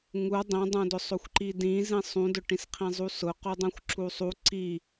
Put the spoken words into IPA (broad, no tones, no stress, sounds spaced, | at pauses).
ŋ u dˤ ĩ dˤ ũ d ʊ sˤ o xʷ ǃ i d ĩ z ĩ sˤ ũ d ʊ ʈ ĩ s qʰ ĩ zˤ u s ʊ q u dˤ ũ xʷ ǁ u sˤ u ǀ i